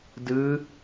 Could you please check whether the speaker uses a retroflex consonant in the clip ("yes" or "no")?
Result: no